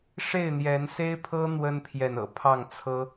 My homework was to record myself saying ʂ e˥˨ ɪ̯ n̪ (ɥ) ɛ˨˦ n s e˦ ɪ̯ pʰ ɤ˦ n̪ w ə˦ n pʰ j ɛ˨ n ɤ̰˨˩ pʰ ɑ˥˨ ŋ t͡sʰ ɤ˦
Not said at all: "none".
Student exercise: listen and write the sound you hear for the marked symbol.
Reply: j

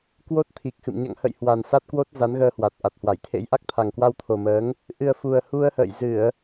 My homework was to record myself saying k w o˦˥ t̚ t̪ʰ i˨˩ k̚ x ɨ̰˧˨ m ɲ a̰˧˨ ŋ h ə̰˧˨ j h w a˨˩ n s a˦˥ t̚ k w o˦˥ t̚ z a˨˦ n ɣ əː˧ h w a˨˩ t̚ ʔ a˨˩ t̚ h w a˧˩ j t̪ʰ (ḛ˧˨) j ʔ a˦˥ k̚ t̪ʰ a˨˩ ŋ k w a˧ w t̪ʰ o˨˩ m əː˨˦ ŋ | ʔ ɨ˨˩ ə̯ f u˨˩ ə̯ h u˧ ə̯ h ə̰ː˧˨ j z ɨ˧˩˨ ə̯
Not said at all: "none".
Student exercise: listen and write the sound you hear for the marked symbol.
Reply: ḛ˧˥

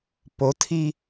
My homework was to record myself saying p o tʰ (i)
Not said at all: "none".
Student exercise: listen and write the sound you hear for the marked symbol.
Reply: i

